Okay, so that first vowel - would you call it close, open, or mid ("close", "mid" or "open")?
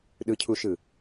close